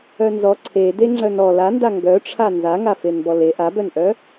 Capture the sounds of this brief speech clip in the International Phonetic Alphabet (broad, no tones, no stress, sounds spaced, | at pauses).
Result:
œ n z ɔ ǀʰ e d e ŋ͡ǀ œ n ɔ l a n d a ŋ ɡ œ ʈ͡ʂʰ a n z a ŋ a f e n b ɔ l e ʔ a b œ n ʔ œ